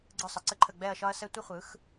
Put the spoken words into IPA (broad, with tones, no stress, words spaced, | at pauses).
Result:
ɡ͡ǀɯ˥˩sˤə˩˥ǀə˥ǃʰə˥˩ ɡ͡bɛ˥˩ɐ̯ʃɒ˥ɐ̯sɛ˥ tʷə˥χʷɯ˩˥x